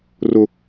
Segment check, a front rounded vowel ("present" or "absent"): absent